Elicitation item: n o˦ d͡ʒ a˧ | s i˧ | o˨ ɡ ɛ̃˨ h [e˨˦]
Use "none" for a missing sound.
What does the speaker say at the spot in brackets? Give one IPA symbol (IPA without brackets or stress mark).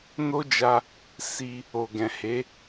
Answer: e˨˦